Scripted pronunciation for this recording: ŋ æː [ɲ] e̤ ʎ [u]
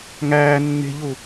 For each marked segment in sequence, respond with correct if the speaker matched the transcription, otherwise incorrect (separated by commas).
incorrect, correct